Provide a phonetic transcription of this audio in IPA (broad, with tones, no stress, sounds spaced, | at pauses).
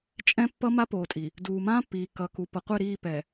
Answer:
t͡ʃʼ ɛ̃˦ pː ʌ˦ m a˦ p oː˨ tʼ i˨ | d uː˨ m ãː˦ pː iː˨ k ʌ˨ k u˨ p ʌ˨ qʷ e˦˨ ɾ iː˦˨ p ɛ˨